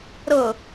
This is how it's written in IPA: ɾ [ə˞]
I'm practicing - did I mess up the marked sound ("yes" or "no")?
yes